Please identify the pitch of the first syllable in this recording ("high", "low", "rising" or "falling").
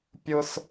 high